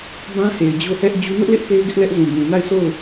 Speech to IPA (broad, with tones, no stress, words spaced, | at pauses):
bã˦he˨ɪ̯ d͡ʑo˦˨hɛ˦ʔ d͡ʑu˦ nʊ˦ʔlɪ˦ʔ pe˦ɪ̯ɡɪ˦ʔlɛ˦ʔ zũ˨bũ˨na˦˨ɪ̯ sʰo˦˨ʊ̯